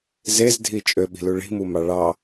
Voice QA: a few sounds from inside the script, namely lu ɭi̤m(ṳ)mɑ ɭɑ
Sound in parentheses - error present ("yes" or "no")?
yes